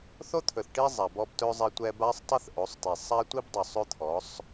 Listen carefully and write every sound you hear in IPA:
θ o˦ t̪ʰ ɵ˨ θ ʈ i˦ zˤ a˨ b ɔ˦ b t ɵ˦ zˤ ɛ˦ tʷ ɛ˦ b a˦ sˤ tˤ ɛ˦ θ ʔ o˨˦ sˤ t i˨ sˤ a˦ tʷ i˦ b dˤ ɵ˨ sˤ ɵ˦ t̪ʰ ɔ˨˦ sˤ

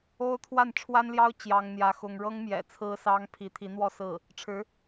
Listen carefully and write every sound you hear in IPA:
o˥ ʊ̯ t̪ʰ w a˥˩ n ʈ͡ʂʰ w a˥ n l j ɑ˥ ʊ̯ t͡ɕ j ɑ˥ ŋ n̪ j ä˥ x ʊ˥ ŋ ɻ ɤ˥ ŋ m j ɛ̰˨˩ t͡sʰ ɹ̩˥ s ɑ˥ ŋ pʰ i˧˥ t̪ʰ i˧˥ n̪ w ɔ˥˧ s ɹ̩˥˩ | ʈ͡ʂʰ ɻ̩˧˥

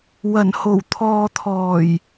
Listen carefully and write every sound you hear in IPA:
w ɐ˨˩ n h o˨˩ w t̪ʰ ɔː˨ t̪ʰ ɔː˨˩ j

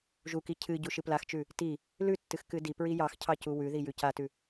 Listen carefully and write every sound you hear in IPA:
ʒ u k i cʰ ɨ ɟ u ʃ ɨ p l a x t͡ʃ ʉ | t i | l ʉ tː ɨ x k ɨ d i p ɹ i j ɑ x cʰ ɑ c u w ʉ ð i j ʉ c a t ʉ

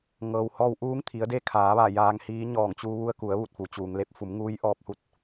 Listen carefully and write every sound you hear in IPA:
ŋ ɤː˩ w h ɔː˧ w ʔ uː˧˥ ŋ t̪ʰ i˩˧ ə̯ d e˧˥ kʰ aː˩˧ ʋ a˧˩ j aː˧ ŋ h iː˧˥ ɲ ɔː˧˩ ŋ t͡ɕ u˧ ʋ u˧ ə̯ k u˩˧ ə̯ ʋ u˧˩ t̚ f u˩ t͡ɕ uː˩ ŋ l e˧˥ p̚ f u˩˧ m ŋ uː˧˥ j ʔ ɔː˧ p̚ h u˧˥ t̚

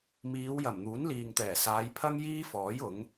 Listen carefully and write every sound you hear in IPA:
m iː˨˧ w j ɐ˨˩ m n̪ uː˨˥ n l iː˨ ŋ t̪ ɛː˨˩ s aː˨˧ j pʰ ɐ˥ ŋ j iː˥ f ɔː˨˥ j ʊ˨˥ ŋ

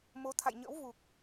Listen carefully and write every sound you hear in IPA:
m o˨˦ t̪ʰ a̰˧˨ j ɲ ə̰˧˥ w v u˨˩ k̚

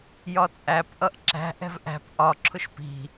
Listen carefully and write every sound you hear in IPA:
j ɒ t͡sʼ æ p ʔ ʌ ʔ ǁ æ̤ ʔ ɛ̤ v ʔ æ̤ p ʔ ɒ ǁʰ ʊ ʃ p i̤

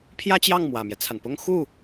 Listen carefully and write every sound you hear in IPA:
pʰ j ä˥ t͡ɕ j ɑ˥˩ ŋ m w ä˨˩ m j ɛ˦ t͡sʰ a˩ n p ʊ˥ ŋ x u˥˩

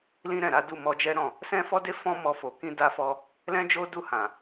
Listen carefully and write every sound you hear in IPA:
l ĩ˦ ɾ ɛ̃˦˨ ɾ a˨˦ d u˦˨ m ɔ˧ d͡ʒ ɛ˦ ɾ ɔ̃˦˨ | s ɛ̃˦ f ɔ˦ d e˦ f ɔ̃˦ m ɔ˧ f o˨ k ĩ˧ d a˧ f ɔ˧ | l ɛ̃˦ d͡ʒ o˦ d u˦˨ h ã˨

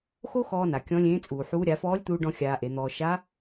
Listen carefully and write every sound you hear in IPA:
x o˥ x ɔː˧ n a˩ kʲ ɔ̃˧˥ lʲ ẽː˧˥ t͡sʼ uː˩ ħ uː˧˥ ɾʲ a˩˧ f ɔː˧˥ lʲ t̪ uː˧ ɖ ɔ̃˧ xʲ aː˧ ʔ e˩˧ n̪ ɔː˧ ʃ a˧˥

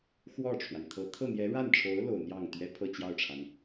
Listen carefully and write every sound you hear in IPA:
x w ɔ˥˩ ʈ͡ʂʰ w a˩ n t̪ʰ ɤ˧˥ t̪ʰ ɤ˥˩ n̪ j ɛ˧˥ ɻ a˥˩ n ʈ͡ʂʰ o˧˥ ʊ̯ l o˨˩ ʊ̯ n̪ j ɑ˥˩ ŋ t̪ ɥ ɛ˥ pʰ ɤ˥˧ t͡ɕ j ɑ˥˩ ʊ̯ ʈ͡ʂʰ a˩ n

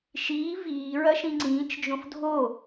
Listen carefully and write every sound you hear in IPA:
ʃ iː v iː ɹ ɐ ʃ ĩ ŋ͡ǀ ĩː t͡ʃ d͡ʒ õ f dʱ o

